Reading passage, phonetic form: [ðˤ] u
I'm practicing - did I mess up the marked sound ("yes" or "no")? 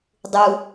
yes